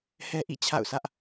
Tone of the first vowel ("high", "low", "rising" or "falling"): high